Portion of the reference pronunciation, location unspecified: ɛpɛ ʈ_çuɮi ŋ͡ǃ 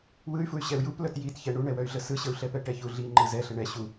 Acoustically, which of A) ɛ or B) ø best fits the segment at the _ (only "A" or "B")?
A